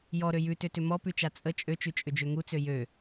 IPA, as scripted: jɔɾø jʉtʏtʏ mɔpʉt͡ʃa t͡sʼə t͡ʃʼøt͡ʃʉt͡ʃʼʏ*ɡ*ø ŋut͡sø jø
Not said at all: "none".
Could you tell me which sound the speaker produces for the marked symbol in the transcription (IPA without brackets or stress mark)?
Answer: d͡ʒ